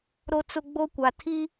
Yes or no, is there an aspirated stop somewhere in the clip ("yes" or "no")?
yes